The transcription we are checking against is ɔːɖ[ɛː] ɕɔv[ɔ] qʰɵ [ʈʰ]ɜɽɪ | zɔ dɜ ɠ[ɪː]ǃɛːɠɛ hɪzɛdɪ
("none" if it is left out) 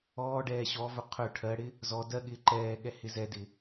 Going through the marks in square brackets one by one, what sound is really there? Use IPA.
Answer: ɛː, ɵ, ʈʰ, ɪː

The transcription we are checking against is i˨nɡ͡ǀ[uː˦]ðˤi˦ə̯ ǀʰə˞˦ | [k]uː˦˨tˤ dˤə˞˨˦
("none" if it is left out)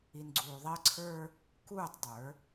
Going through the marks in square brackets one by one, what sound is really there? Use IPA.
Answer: uː˨, k

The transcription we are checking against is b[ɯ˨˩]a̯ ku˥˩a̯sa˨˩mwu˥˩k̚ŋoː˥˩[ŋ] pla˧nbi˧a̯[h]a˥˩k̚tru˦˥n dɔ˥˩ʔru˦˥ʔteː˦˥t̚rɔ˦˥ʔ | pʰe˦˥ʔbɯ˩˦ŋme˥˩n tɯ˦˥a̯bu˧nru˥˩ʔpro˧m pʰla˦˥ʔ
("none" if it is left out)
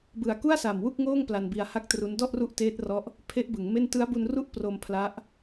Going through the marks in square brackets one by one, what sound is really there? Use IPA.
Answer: ɯ˨˩, ŋ, h

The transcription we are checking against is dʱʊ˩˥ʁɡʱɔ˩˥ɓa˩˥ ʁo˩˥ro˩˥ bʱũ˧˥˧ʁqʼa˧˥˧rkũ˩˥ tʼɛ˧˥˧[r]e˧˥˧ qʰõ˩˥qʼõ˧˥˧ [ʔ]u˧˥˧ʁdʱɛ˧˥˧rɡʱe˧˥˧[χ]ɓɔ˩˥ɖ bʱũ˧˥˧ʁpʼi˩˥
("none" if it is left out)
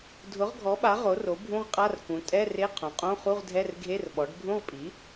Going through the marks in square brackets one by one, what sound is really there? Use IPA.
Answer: r, χ, r

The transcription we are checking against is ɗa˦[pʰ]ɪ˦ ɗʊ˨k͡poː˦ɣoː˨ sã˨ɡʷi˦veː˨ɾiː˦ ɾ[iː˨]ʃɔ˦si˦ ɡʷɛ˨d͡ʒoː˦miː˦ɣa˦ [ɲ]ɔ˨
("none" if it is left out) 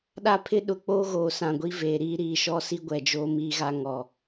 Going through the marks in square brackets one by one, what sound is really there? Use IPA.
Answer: pʰ, iː˨, ŋ

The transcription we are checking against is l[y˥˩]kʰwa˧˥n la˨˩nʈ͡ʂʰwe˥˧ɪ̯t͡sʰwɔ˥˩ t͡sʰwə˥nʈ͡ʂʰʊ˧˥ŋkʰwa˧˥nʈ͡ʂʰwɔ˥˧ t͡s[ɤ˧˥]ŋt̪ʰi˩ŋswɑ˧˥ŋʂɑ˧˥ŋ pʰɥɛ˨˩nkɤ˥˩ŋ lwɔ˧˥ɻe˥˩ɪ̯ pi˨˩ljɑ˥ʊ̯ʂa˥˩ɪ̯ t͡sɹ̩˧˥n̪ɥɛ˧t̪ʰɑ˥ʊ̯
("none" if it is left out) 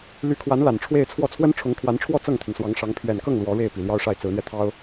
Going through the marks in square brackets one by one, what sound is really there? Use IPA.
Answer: y˧˥, ɤ˥˩

